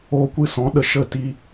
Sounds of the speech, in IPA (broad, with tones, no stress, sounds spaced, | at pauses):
o˧ kʷ ɨ˧ s ɔ̃˨˦ ɗ ə˨ ʃ ə˦˨ t i˦